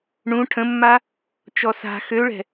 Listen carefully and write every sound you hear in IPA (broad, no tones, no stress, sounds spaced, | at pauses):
ɳ ũ ʈʰ ə̃ mː a | t͡ʃ ɔ s a̤ x ø ɭ ɛ̤